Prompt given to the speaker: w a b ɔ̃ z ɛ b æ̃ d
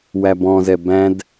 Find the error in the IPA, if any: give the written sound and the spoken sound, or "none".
a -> æ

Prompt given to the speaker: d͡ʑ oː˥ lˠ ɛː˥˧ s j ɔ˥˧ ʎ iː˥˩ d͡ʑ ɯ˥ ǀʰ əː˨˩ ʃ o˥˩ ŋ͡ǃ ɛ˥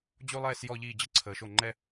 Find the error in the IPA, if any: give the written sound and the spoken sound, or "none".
oː˥ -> o˥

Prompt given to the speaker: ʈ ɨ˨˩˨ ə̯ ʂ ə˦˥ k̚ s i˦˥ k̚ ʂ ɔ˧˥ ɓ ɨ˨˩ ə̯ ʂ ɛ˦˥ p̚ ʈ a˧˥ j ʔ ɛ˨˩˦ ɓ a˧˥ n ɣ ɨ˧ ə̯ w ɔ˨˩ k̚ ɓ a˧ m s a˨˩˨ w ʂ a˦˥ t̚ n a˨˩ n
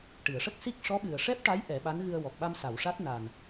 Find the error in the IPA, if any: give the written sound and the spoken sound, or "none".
none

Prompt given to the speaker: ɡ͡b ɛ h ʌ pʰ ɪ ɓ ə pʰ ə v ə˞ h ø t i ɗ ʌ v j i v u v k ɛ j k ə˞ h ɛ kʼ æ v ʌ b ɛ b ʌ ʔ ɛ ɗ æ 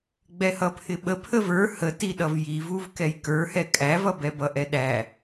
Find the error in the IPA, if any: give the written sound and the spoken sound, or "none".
ø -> ə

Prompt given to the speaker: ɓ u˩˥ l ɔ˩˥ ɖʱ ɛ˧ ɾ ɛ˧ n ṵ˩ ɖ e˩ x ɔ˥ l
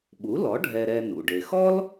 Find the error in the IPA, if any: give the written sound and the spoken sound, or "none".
none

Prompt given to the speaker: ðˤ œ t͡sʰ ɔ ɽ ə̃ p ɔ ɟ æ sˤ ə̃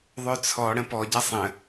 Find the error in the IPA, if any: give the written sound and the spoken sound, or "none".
æ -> a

